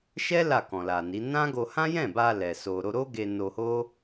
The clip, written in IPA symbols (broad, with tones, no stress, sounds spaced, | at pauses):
ʃ ɛ˦ l a˦˨ k ɔ̃˨ l a˨ n i˨˦ n ã˦ ɡ o˧ h ã˦ j ɛ̃˦˨ b a˧ l ɛ˨ s o˨ ɾ o˧ ɾ o˦ ɡ e˧ n o˧ h o˦